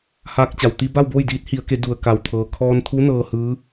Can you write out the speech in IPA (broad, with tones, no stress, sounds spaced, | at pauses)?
h aː˧ k̚ t͡ɕ a˩ w t̪ i˧ b a˥˨ w b oː˥˨ j d iː˧˥ t̚ h i˩˧ ə̯ k e˩˧ d u˩ ə̯ k a˩ w t̪ʰ ɤː˩ kʰ ɔː˧ n t̪ʰ u˧˥ n ɤː˧ h ɯː˧˥